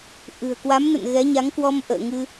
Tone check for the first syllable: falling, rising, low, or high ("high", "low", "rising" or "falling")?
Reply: low